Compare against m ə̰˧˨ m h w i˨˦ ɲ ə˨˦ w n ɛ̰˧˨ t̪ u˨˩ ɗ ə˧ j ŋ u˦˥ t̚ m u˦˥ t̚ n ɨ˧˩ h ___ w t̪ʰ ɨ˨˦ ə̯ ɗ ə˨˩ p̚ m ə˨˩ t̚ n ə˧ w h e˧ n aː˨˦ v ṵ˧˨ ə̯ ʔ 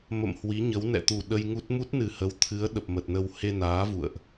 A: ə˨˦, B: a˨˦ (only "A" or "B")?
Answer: A